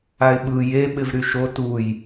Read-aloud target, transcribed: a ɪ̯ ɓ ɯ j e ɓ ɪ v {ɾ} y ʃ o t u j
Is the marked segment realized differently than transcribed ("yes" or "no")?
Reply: no